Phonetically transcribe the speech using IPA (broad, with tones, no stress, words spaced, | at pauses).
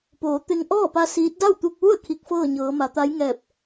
poː˩˧ t̪e˧ŋ ʔɔː˥˨pa˧ siː˧˥t̚ da˥˨wt̪u˧k̚ʋu˥˨ə̯ kʰi˧k̚fɤː˥˨ɲɤː˩˧ ma˩˧ t̪a˧˥jŋɛː˧˩p̚